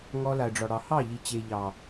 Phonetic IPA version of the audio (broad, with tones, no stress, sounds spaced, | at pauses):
ŋ ɔ˧ l a˨ ə̯ ɖ͡ʐ ɒ˨ ɽ ɑ˨ h ɑ˦˨ ʎ i˨ t͡ɕ e˨ ʎ ɑ˨